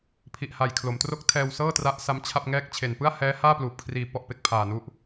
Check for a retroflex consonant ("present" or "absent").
absent